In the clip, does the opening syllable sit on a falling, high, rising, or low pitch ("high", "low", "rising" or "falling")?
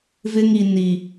high